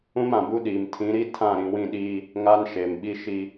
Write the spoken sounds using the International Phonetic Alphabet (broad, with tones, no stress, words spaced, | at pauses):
ũ˦mã˨bu˦ɗiː˨m tʰĩ˨˦ɾi˦ tʰã˦˨ɾĩ˨wĩ˦˨ ɗiː˦ | ŋa˦nʃe˨mɓi˦ ʃi˦